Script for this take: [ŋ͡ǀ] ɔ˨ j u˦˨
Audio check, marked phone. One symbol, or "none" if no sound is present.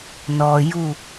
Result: n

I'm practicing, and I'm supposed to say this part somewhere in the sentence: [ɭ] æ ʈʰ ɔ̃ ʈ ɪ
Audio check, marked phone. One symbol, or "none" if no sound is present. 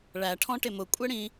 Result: ɭ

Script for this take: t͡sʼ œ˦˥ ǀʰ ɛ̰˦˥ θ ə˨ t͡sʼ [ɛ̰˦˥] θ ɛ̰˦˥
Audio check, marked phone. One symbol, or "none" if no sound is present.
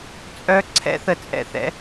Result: ɛ̰˦˥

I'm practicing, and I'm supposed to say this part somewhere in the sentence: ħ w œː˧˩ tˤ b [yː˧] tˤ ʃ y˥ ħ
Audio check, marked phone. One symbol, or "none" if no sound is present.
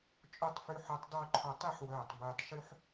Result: yː˧˩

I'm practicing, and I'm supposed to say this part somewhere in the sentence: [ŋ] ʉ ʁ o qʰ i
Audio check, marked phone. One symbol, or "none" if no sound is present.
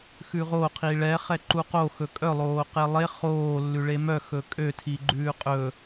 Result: x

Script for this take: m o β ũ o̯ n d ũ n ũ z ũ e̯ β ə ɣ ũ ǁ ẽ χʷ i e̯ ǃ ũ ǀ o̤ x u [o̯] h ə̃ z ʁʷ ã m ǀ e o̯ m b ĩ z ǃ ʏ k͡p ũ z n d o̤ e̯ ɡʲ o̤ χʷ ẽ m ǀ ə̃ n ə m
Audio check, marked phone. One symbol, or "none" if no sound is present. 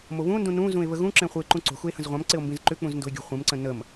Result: e̯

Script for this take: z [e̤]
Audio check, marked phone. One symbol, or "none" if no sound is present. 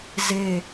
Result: e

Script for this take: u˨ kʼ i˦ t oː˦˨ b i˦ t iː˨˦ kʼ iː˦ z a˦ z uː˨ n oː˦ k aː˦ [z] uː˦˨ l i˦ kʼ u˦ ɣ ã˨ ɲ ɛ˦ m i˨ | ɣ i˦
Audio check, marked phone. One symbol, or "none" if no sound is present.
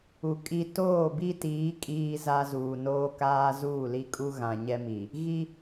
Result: z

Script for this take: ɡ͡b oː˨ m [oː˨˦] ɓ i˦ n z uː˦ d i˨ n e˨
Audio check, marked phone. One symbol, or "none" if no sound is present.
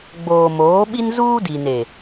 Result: oː˨˦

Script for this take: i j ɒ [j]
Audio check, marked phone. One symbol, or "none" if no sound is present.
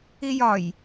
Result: j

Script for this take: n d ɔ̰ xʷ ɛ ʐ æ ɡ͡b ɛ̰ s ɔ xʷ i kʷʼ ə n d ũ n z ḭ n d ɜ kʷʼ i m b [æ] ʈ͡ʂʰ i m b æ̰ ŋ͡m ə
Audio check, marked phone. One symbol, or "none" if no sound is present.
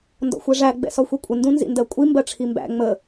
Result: ɜ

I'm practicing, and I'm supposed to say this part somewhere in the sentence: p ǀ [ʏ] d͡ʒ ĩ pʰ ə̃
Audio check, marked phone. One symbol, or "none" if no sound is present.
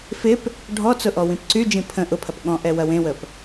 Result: y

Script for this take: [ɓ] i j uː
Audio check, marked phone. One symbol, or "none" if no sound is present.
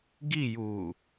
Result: ɡ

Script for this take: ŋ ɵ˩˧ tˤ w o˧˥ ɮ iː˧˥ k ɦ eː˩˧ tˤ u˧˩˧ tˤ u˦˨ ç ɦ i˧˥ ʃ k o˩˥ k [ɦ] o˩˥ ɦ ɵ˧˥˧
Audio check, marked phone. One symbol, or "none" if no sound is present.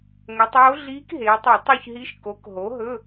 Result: ɦ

